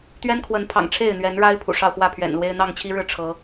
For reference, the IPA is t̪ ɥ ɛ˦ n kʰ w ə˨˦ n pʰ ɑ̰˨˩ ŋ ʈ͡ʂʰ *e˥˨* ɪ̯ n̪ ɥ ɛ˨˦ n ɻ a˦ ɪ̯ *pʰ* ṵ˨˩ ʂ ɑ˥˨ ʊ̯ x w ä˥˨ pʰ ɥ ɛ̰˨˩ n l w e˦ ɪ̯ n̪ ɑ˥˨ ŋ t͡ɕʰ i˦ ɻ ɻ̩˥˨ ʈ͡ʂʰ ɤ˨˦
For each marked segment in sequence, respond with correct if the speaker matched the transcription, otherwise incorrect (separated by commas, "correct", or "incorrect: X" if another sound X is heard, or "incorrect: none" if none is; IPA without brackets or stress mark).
correct, correct